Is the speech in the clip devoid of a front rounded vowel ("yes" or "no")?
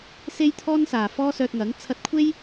no